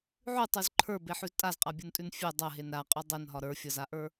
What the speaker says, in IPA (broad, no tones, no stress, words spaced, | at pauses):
ʕʉtˤʉz ǃʰə˞beħʉz tʼazqʼabʲuntʼʉn fʲe dˤɐɦen ɾaqʼʉ dˤenɦɒ ɾə˞fʲɒzaʔə˞